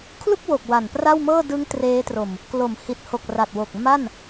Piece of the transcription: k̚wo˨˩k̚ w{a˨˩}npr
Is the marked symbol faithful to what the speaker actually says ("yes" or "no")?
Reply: yes